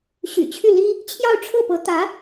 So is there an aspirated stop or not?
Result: yes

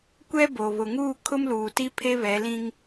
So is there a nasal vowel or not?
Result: yes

